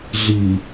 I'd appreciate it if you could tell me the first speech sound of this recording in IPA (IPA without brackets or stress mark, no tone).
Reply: ɮ